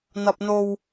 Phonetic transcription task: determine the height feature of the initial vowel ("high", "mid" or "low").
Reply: low